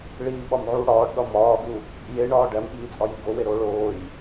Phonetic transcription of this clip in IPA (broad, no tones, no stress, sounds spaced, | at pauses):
ɭ iː ɓ ɒ m ʕ u ɽ ɒː ɖ ɗ ɒ m ɒː ɡ u | j e ɳ ɒː ɖ æ m ɓ iː t͡sʼ ɒ j i ɡ o w e ɾ oː ɭ oː j